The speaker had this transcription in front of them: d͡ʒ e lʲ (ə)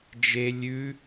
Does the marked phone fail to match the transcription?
yes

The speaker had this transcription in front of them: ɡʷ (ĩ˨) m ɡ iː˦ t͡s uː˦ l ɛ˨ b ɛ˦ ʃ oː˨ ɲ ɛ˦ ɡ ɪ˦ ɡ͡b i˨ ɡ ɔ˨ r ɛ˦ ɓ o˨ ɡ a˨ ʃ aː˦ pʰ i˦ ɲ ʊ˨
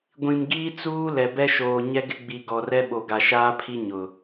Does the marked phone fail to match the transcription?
no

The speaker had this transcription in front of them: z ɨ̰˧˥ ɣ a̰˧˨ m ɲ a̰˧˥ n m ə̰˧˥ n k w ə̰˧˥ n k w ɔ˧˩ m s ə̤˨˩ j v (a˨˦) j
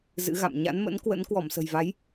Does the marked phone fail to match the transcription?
no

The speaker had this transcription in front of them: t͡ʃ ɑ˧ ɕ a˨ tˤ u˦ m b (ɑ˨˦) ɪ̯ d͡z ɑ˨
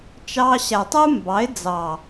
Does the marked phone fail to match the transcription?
no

